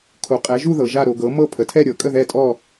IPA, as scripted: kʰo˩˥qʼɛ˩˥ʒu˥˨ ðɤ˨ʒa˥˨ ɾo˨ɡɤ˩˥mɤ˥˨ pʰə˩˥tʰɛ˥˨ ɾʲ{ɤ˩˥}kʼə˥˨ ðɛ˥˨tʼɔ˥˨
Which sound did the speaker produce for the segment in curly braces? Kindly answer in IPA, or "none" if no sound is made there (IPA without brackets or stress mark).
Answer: ɤ˩˥